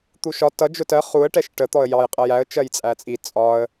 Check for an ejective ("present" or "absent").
present